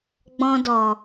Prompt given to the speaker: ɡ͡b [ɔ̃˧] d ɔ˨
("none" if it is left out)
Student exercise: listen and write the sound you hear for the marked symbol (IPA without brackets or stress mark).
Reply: ɔ̃˧